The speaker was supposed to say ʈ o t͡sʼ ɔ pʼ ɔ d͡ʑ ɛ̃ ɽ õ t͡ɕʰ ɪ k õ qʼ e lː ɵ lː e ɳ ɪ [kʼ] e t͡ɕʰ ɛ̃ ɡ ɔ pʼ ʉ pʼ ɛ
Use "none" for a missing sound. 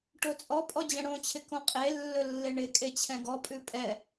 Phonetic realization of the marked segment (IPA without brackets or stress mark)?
kʼ